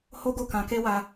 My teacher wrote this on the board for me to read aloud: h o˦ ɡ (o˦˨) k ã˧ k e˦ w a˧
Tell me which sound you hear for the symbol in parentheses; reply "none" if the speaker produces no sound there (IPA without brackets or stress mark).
o˦˨